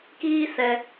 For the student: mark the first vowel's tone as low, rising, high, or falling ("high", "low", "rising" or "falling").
high